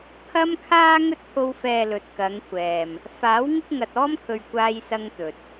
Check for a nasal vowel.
absent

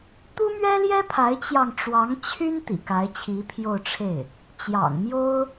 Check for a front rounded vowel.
present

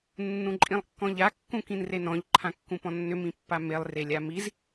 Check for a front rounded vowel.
present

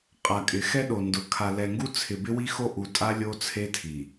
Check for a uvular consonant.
present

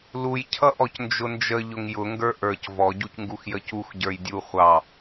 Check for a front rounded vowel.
absent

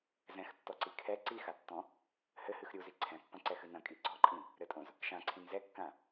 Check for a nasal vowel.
present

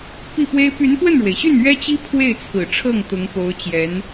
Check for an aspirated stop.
present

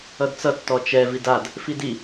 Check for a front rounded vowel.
absent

